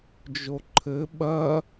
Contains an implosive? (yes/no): yes